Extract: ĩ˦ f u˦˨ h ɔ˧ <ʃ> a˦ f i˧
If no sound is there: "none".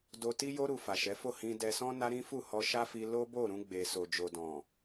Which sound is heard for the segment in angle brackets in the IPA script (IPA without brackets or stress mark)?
ʃ